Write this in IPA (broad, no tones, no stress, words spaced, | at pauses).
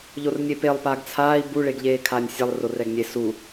ʎornʲepelˠ paɡt͡sʰaːi̯ bu ɭeɡʎeːkʰaːnʲsʲɛlˠ rorɛɡnʲe su